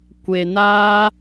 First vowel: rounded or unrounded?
unrounded